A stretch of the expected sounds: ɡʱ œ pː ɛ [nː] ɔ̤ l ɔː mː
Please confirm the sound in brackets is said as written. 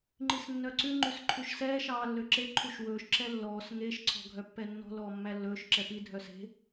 yes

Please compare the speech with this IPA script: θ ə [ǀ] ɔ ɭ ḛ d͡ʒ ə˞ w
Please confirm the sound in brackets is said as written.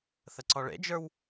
yes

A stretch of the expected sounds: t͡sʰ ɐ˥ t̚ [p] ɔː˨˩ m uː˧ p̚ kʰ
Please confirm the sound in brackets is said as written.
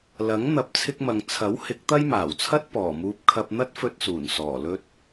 yes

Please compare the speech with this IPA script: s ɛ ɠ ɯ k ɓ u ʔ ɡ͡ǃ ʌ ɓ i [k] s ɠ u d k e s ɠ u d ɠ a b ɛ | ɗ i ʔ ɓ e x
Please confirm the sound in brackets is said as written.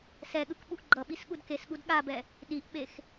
no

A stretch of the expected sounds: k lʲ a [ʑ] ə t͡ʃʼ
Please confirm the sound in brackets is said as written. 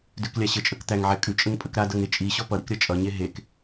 no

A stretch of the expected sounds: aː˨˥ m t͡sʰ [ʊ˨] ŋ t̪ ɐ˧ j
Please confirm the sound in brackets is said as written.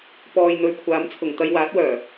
no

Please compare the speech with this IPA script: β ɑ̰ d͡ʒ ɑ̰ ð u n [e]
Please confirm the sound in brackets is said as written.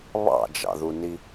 no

